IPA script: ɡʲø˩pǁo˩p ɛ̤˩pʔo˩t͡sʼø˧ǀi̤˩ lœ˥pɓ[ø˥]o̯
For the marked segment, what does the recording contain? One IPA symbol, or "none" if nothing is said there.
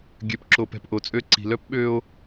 ø˧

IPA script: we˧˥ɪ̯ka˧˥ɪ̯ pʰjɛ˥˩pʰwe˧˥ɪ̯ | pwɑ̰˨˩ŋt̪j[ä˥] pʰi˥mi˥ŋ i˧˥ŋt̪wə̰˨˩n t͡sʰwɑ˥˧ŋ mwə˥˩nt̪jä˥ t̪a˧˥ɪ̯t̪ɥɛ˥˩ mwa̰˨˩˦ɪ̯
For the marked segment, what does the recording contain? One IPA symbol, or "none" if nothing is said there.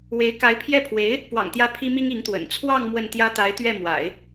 ä˧˥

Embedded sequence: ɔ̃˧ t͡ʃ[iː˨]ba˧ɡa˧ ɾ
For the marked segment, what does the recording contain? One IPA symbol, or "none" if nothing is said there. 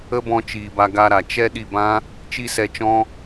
iː˨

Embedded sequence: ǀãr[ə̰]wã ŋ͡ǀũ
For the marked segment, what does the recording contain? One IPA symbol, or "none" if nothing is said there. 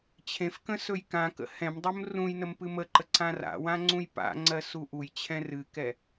a̰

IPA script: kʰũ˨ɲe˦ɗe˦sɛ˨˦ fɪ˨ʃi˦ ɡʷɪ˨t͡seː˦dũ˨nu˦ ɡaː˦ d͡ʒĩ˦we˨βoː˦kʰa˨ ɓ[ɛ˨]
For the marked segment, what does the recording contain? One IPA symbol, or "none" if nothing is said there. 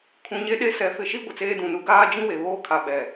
ɛ˨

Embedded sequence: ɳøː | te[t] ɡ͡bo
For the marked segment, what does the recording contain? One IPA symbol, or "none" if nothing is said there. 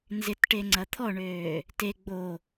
none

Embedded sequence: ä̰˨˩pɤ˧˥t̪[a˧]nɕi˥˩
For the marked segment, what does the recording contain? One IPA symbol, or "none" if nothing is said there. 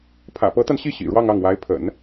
a˧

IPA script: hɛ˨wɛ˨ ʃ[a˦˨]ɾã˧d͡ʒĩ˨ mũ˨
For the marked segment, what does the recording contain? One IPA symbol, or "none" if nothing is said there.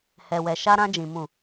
a˧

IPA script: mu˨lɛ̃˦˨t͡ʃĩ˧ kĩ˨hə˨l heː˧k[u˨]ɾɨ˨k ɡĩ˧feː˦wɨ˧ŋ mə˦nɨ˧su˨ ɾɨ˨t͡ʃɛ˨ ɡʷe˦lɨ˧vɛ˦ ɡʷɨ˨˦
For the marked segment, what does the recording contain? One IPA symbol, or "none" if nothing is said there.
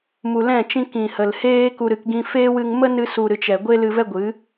u˨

